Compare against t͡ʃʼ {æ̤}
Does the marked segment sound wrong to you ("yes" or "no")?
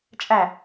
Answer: yes